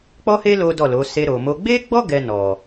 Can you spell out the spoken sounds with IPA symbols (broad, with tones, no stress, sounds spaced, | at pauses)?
k͡p ɔ˦ h e˦ l o˦ d ɔ˦˨ l o˨˦ s e˧ ɾ o˨ m o˧ ɡ͡b e˦ ɡ͡b ɔ˦ ɡ ɛ˧ n ɔ˨